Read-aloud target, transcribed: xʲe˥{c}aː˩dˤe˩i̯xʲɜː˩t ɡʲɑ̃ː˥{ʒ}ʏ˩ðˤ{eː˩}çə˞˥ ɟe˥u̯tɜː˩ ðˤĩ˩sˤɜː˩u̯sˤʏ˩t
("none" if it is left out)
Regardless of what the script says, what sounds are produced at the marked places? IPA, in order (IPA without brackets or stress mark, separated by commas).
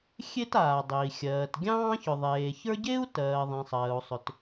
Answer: t, ç, eː˩